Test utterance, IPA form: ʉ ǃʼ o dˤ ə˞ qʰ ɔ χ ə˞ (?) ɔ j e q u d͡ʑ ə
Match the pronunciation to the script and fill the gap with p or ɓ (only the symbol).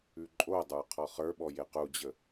ɓ